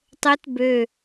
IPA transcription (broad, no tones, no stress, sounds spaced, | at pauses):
tˤ ɘ t b ø